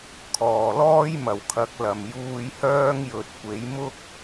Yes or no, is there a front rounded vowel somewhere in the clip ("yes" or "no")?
yes